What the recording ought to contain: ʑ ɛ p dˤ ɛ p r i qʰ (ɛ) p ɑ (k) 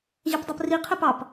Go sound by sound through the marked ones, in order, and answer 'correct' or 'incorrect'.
correct, incorrect

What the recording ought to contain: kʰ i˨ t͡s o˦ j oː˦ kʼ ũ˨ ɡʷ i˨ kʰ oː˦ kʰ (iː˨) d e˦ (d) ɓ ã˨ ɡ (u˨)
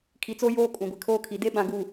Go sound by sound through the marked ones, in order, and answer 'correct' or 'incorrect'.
incorrect, incorrect, correct

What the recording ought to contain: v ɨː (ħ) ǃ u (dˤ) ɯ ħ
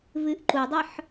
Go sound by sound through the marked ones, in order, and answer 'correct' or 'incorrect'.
incorrect, correct

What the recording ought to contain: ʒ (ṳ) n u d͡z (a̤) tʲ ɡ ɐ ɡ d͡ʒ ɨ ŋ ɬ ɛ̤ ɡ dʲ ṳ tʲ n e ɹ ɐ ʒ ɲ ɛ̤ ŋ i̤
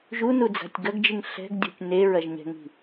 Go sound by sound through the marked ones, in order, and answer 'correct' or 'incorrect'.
incorrect, correct

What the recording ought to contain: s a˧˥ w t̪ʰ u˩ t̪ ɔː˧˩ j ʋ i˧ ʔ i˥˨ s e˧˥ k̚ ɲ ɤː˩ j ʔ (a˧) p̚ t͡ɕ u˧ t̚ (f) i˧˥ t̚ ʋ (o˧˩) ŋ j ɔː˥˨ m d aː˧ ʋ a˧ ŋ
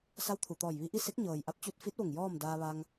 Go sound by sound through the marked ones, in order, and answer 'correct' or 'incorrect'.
correct, correct, correct

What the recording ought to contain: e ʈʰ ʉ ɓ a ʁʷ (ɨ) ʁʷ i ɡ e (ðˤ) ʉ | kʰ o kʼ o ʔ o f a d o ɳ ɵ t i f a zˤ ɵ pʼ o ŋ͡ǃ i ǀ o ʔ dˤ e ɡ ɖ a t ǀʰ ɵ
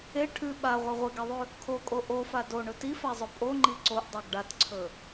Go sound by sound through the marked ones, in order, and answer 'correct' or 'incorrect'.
correct, correct

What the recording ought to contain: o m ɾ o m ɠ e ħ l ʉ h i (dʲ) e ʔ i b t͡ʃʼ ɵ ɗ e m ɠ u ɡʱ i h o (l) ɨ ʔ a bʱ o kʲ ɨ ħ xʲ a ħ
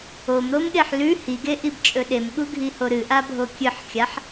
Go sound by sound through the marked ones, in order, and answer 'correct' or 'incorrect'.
incorrect, incorrect

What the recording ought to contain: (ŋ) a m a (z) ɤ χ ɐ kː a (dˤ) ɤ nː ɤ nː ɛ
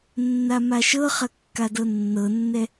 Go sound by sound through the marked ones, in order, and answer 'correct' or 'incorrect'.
incorrect, incorrect, incorrect

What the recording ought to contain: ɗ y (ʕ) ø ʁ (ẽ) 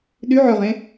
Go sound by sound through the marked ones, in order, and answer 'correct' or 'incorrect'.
correct, correct

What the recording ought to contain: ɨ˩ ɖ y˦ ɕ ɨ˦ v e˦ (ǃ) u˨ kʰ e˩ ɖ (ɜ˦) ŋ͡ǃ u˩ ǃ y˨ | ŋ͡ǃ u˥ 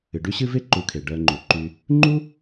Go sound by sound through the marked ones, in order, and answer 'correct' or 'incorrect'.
correct, incorrect

